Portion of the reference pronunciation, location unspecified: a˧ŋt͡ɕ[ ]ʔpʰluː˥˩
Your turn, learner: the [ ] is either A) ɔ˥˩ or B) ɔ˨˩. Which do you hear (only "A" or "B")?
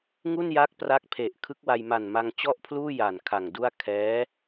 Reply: A